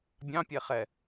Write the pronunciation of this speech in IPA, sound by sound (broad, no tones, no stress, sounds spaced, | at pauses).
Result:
bʲ ɑ̃ pʲ ɛ χ ɛ